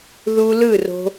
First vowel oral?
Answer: yes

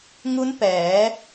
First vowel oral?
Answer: yes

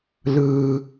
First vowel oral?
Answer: yes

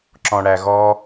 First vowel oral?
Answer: no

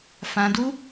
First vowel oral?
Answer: no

